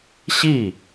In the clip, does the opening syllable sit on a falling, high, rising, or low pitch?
falling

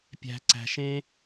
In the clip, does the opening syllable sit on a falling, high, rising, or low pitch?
low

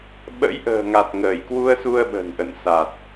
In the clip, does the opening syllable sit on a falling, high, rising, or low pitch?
rising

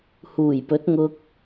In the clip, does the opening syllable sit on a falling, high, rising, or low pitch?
low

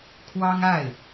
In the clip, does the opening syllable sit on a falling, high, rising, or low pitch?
high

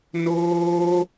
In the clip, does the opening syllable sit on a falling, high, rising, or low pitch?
high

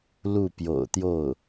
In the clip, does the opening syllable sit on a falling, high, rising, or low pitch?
falling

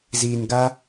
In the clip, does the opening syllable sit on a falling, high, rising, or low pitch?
low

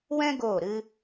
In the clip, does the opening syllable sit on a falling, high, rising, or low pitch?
high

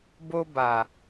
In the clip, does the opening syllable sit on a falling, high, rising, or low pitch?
high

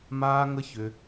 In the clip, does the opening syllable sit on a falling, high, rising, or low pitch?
high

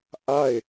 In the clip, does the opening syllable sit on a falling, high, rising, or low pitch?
falling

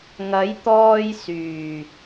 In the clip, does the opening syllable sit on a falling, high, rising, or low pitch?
rising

